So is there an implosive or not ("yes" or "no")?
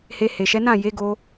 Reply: no